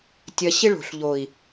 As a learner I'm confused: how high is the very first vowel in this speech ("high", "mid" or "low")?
low